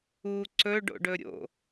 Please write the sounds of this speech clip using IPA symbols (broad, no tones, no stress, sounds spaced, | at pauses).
u ǀ ɵ ɖ o̰ ɖ ɵ ɾʲ o̰